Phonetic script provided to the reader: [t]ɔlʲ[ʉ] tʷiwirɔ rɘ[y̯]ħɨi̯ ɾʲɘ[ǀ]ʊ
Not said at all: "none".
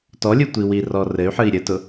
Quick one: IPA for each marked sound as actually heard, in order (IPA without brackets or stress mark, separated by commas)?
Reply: t, ɨ, y̯, t